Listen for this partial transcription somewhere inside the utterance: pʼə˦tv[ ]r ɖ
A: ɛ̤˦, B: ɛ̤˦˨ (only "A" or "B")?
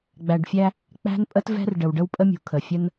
A